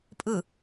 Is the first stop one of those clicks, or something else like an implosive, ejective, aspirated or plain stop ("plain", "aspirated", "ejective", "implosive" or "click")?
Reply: ejective